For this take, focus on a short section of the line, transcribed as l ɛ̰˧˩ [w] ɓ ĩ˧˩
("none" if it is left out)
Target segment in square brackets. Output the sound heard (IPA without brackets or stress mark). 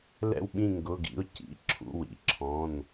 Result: w